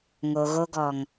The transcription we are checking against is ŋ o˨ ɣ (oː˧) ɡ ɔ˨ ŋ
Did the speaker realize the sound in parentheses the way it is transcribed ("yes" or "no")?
no